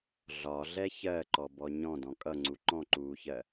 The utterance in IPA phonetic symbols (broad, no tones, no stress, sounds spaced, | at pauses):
ɮ ɒ ɮ ɛ ç ɜ ǃ ɔ b ɔ ɲ ɔ̃ d ɔ̃ kʼ ʌ ŋ͡ǀ u ǃ ɔ̃ ǃ uː ç ɜ